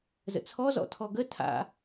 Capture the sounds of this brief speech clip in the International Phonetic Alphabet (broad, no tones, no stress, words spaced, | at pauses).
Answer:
zə̰t͡sʰɔzɔ̰tʰɔ ɡə tʰa̰